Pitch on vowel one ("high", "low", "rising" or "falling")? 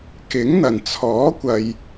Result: rising